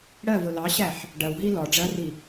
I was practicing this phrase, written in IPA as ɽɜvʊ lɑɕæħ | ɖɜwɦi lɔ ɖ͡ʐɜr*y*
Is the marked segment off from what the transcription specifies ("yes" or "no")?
yes